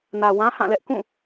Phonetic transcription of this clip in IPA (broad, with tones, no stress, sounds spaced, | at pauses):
n ä˨ w ã˦ h ã˦˨ l ɛ˦ ʔ k ũ˦˨